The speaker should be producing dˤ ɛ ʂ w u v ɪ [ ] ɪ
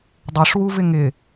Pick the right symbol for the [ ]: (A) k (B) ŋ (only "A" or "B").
B